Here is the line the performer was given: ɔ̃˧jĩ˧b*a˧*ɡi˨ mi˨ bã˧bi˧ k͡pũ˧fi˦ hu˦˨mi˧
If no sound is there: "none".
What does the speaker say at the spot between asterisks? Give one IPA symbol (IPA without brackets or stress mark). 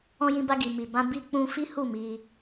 a˧